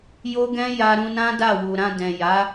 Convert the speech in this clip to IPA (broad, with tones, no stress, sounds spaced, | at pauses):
j o˦ ɡ ɛ̃˦ j a˧ ɾ ũ˧ n ã˦ d a˦˨ w u˨ ɾ ã˧ d ɛ̃˨ j a˨˦